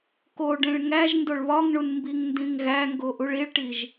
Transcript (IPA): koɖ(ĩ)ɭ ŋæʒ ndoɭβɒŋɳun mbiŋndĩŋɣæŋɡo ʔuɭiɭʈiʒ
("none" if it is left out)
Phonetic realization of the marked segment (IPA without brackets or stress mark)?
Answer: ẽ